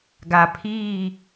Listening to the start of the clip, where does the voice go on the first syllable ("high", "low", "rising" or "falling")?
low